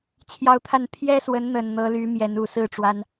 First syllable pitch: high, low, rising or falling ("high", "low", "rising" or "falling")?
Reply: high